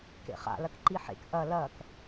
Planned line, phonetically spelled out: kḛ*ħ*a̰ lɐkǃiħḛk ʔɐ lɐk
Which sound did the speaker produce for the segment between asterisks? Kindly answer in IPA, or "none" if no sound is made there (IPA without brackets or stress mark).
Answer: χ